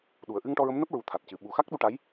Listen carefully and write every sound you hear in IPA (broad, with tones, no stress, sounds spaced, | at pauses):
ɗ u˨˩ ə̯ ʔ ɨ˧ ŋ ʈ ɔ˧ ɹ ə˧˥ m n əː˦˥ p̚ ɹ u˧˥ t̪ʰ a˨˩ t̚ c ɨ˨˩ ɓ u˨˩ x a˦˥ k̚ ɗ u˧ ʈ a˧˥ j